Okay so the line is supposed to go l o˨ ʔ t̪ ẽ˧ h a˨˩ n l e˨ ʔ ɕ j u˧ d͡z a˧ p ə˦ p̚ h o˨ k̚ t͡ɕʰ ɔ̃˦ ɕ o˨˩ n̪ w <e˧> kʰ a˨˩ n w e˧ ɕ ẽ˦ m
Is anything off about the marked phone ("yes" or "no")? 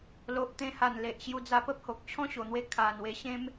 no